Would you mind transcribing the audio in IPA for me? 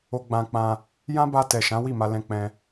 o˧ ɡ͡b ã˧ k͡p ã˧ | j ã˦ b a˧ t ɛ˨ ʃ ã˨˦ w i˦˨ m a˧ l ɛ̃˧ k͡p ɛ̃˧

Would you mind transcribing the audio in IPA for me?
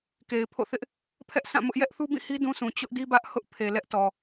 k e˨ ɪ̯ pʰ o̰˦˨ θ ɪ˦ ʔ | pʰ ɛ˦ ʔ s ã˦˨ m ʊ˦ ʔ j ɛ˦ ʔ θ u˦ b ĩ˦˨ h i˦ d ũ˦ s ũ˨ t͡ɕ ʊ˦ ʔ d i˦ b ä˦ ʔ h ʊ˦ ʔ pʰ e˨ l ɛ˦ ʔ t ɔ˨

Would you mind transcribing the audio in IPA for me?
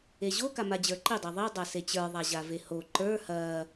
e ʑ o k a m a d͡ʑ ə˞ ǃ i dˤ e ðˤ i dˤ a s e t͡ɕ ə˞ ðˤ a ʑ a v e h o ǃ ə˞ h ɐ

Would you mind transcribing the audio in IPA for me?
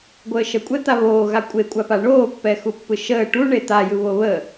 ɡʷ əː ʃ ə kʷʼ ɛ t̪ a β oː ɣ a kʷʼ e kʷʼ a p a ɳ oː pː ɛ x u pː ɯ ʃ əː ʈ u ɳ e t̪ a j ɯ β o β ə

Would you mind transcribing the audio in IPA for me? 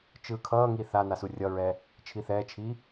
t͡ʃ ɯː kʰ ʌː ŋ i θ a n a s u rʲ ʌ ɹ ɛː | t͡ʃʰ i θ ɛː t͡ʃʰ iː

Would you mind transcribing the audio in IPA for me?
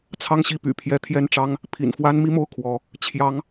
t͡sʰ ɑ˥˧ ŋ ɕ i˥˩ p y̰˨˩ pʰ j ɛ˧˥ t̪ʰ j ɛ˥˩ n ʈ͡ʂ ɑ˥ ŋ | pʰ ḭ˨˩ n f w a˥ n m i˥ m o˥˩ ʊ̯ kʰ w ɔ˧˥ | t͡ɕʰ j ɑ˧˥ ŋ

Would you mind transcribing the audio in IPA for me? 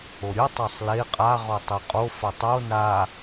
o ɾʲ ɯ tˤ ɛ sˤ l e qʼ a ʁ ɔ tˤ e qʼ o f a tˤ o n a

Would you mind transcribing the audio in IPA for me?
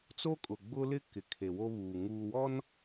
t͡s o˦ kʼ ʊ˨ ɡ͡b ʊ˦ l ɪ˦ k ɪ˨ kʰ e˨ w o˦ β uː˨ ŋ uː˨ w ɔ˦ n

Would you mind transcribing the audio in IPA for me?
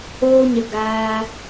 oː˧ ɲ ə˨ ɡ aː˧

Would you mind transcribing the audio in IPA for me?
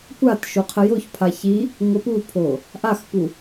kʷ a t ʃ o qʰ ə j o ç pʰ a ç i | ŋʷ ə p u pʰ o | ʔ a x p u

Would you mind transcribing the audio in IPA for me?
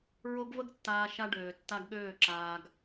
ɹ o˦ ɡ v ə˦ ɡ tː aː˧ ʃ a˧ ɖ øː˨ tː a˧ ɡ ɠ øː˦˨ ǁ aː˧ ɡ

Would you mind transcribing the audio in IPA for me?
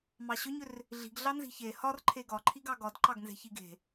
m ɑ ɕ ʏ ɲ ʏ r | ɮ i̤ ɡ ɮ ɑ n z i̤ ç e h ɒ r ǃʰ e ɡ ɒ ǃʰ i ɡ ɑ ɡ ɒ d ǃ ɑ ɡ n z e̤ ç i ɡ e̤

